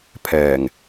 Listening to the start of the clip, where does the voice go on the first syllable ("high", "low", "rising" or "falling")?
low